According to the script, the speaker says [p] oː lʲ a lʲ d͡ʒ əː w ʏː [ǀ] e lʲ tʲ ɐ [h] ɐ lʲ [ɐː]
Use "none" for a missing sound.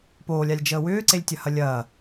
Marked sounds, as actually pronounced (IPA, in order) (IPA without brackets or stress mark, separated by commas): p, ǀ, h, ɐː